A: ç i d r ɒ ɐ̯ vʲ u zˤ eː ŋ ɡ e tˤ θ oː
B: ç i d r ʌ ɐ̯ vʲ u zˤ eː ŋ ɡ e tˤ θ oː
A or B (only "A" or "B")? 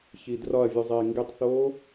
A